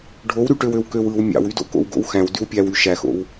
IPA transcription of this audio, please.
ɖʱowɾyʈøwøw køwɯw mʲɑ̰wydo̰ ko̰wɡo̰wxæ̃w dywpʲæwy ʃæxo̰w

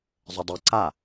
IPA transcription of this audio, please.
zˤədˤɨ ǀa

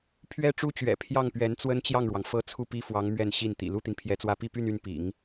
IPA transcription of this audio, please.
pʰɥɛ˥ʈ͡ʂu˥t͡ɕɥɛ̰˨˩ pʰjɑ˥˩ŋ pɥɛ˧˥nt͡swə˥nt͡ɕjɑ˥˩ŋɻwɑ˩ŋ fɤ˥˧ t͡sʰu˥˩pi˥fwɑ˧˥ŋ mɥɛ˥˧nɕi˥˩nt̪ḭ˨˩ lu˥t̪i˨npʰjɛ˧˥t͡swä˥ pi˥˧py˥˧n y˥˩npḭ˨˩˦ŋ

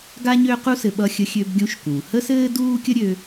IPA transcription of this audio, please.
ɡa˥ɲø˥qu˥sɘ˧ ɓʌ˧xʲə˧xʲø˧bɡʲũ˧ʃ kũ˩hə˥sɘː˥ duː˥ kʲə˥ ɾʲø˧

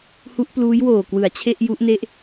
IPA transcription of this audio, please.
hu˦˥ʔpluː˦˥jwoː˨˩ kwɯ˩˦a̯t͡ɕʰe˥˩ʔ ju˦˥ʔne˥˩ʔ

